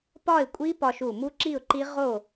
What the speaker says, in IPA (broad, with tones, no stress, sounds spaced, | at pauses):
p ɒ˥˨ ɪ̯ kʷʼ i˦˥ p ɒ˧ ʃ u˧˩ m u˦˥ ǁ i˥˨ ʊ̯ ǃ i˦˥ ʁ o˥˨